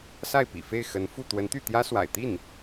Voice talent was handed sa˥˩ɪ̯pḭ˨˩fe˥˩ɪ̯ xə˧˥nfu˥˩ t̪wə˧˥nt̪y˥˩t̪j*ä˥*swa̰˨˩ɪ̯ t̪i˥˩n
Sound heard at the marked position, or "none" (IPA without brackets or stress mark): ä˥